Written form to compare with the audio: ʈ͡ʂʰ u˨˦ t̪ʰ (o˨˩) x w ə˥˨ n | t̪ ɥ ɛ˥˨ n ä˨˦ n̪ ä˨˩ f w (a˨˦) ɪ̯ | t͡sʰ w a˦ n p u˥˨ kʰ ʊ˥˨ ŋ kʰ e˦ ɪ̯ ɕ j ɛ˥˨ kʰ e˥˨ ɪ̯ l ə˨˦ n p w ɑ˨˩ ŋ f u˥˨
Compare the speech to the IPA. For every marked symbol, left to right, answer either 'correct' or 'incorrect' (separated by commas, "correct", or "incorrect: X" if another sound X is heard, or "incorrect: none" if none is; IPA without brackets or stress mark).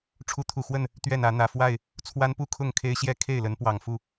incorrect: u˨˩, incorrect: a˥˨